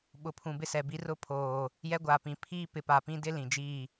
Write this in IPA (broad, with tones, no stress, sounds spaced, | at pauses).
ɓ ʊ˨ pʰ ũ˨ b ɪ˦ s ɛ˨ b i˦ r ʊ˦ pʰ oː˨ | j ɛ˦ ɡʷ aː˨ p ĩ˨ pʰ iː˦ p ɪ˨ p a˨ p ĩ˦ d ɪ˦ l ĩ˨ d͡ʒ iː˦˨